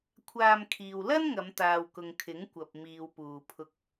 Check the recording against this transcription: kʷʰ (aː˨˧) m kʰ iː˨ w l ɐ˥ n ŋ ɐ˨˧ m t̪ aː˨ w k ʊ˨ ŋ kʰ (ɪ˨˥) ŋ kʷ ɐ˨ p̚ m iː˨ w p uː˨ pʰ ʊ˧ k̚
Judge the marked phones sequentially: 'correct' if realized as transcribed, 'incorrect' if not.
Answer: incorrect, correct

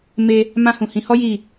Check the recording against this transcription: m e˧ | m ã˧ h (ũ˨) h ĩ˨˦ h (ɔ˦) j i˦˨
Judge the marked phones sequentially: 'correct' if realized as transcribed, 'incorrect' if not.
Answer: correct, correct

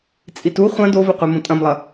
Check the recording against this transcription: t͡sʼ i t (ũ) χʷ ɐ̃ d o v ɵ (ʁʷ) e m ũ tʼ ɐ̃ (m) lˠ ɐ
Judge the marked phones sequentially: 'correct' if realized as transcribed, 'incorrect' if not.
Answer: incorrect, incorrect, correct

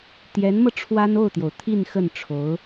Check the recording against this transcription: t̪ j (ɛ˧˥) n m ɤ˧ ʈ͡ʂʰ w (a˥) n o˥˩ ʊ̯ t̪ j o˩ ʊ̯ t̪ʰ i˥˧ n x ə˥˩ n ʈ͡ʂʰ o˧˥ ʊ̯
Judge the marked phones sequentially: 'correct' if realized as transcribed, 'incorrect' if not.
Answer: correct, correct

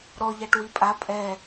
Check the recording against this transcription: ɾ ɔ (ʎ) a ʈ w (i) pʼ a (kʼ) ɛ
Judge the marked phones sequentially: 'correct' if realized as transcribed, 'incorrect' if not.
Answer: correct, correct, incorrect

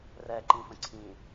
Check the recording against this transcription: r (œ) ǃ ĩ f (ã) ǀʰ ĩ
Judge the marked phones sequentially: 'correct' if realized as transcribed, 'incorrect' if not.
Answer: incorrect, incorrect

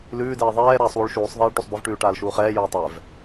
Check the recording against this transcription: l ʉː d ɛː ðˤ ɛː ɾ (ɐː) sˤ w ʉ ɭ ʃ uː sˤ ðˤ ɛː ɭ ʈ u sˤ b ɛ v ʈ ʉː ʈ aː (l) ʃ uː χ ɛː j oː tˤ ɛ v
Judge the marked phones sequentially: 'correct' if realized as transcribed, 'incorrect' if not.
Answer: incorrect, correct

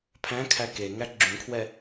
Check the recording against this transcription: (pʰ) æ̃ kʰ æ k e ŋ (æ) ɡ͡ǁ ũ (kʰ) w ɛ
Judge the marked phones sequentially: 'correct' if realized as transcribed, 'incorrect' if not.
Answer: correct, correct, correct

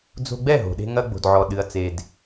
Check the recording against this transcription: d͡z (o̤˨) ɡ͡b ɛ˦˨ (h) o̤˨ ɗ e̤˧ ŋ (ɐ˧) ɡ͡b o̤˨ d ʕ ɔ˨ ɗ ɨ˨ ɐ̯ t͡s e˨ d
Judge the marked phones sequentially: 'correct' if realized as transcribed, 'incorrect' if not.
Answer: incorrect, incorrect, correct

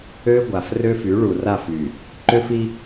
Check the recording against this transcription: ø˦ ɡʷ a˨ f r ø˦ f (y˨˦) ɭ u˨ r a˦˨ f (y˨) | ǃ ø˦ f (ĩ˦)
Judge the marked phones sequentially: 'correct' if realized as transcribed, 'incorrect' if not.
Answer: correct, correct, incorrect

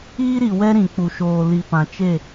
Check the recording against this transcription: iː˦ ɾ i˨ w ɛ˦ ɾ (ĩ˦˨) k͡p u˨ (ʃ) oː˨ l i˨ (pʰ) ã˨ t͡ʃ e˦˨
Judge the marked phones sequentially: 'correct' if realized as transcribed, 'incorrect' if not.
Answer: incorrect, correct, incorrect

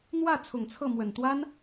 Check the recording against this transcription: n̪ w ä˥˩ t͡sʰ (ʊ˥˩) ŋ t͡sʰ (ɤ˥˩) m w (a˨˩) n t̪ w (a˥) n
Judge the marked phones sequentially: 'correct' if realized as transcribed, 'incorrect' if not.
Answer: incorrect, correct, incorrect, correct

